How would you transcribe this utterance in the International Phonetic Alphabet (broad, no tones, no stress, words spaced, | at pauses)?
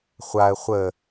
χʷaə̯ χʷə